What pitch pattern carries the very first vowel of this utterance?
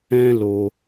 high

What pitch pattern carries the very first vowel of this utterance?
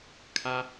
high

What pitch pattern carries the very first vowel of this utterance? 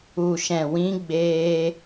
low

